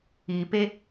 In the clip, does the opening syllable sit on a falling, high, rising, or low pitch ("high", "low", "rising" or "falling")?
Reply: low